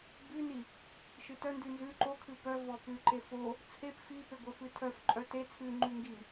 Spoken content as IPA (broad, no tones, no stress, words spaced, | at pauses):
bʉni | ʃɨtœndʉ nzʉ ǃokʰɨ pœ vɔpʉǃe fo | t͡sʰep fipe ɡʷœfɨtʰœfǃʼœ te t͡sʰʉŋ͡ǃʉ ŋɡi